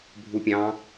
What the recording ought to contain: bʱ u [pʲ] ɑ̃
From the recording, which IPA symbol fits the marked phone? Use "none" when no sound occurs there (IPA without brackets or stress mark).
pʲ